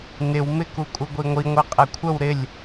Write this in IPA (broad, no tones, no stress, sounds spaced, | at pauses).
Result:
n ɪ w m ɪ k u kʼ u ɡʷ i ŋʷ i ŋʷ ɛ qʼ ɛ kʷʰ ə w ɾ ɪ lʲ